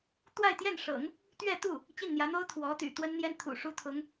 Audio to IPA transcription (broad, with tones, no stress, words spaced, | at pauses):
t̪wa˥˧ɪ̯t̪jɛ˥˩nʂɤ̰˨˩˦ŋ | t̪ɥɛ˥˧t̪u˥˩ | t͡ɕi˥˩nn̪jä˧˥n̪o˥ʊ̯ t̪ʰwɔ˧˥t̪y̰˨˩t̪wə˥nn̪jɛ˥n t̪ʰṵ˨˩ʂu˥t̪ʰʊ˧˥ŋ